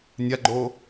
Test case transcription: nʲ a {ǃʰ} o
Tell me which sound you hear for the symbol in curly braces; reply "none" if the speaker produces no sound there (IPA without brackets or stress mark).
ɡ͡ǃ